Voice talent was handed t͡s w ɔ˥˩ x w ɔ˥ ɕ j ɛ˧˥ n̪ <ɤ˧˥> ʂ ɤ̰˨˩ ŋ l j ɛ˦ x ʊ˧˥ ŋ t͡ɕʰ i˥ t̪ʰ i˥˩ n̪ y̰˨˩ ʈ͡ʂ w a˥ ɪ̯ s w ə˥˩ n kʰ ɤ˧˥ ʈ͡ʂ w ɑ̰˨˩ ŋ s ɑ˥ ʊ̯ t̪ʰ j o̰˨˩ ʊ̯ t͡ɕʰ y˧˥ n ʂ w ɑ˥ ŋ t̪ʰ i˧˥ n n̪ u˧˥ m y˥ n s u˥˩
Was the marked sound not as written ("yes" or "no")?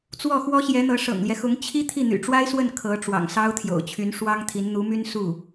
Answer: no